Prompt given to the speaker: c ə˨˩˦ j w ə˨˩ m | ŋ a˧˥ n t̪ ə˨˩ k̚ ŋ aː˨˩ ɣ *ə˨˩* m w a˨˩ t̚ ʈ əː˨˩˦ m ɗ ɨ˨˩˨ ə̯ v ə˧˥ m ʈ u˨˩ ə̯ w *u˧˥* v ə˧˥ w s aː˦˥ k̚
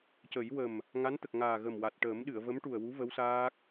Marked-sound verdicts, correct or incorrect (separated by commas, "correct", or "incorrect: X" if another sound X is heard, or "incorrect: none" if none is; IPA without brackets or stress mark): correct, correct